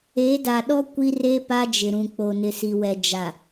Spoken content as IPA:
e˨˦ d a˨ ɗ ɔ˦ kʷ i˦ r e˦ p a˦ d͡ʒ ɪ˨ ɾ ũ˨ k͡p o˨ n ɪ˨ s i˨ w ɛ˨ d͡ʒ a˨

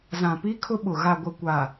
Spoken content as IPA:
z ã˨ p i˦ kʰ ʊ˦ ɓ ʊ˨ ɣ a˨ ɡʷ ɪ˨ kʷ a˨

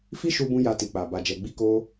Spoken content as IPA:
f i˦ ʃ u˧ b ũ˧ j a˧ t i˨ k͡p a˨ b a˨ d͡ʒ ɛ˨ ɡ͡b i˧ k o˧

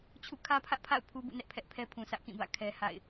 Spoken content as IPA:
t͡ɕʰ ṵ˦˨ kʰ ä˦ pʰ ä˦ ʔ pʰ a̰˦˨ ʊ̯ pʰ u˦ b ṵ˦˨ n ɛ˦ ʔ pʰ ɛ˦ ʔ pʰ ɛ˦ pʰ ũ˨ s ä˦ ʔ k ĩ˦˨ b ä̰˦˨ kʰ ɛ˦ h a̰˦˨ ɪ̯

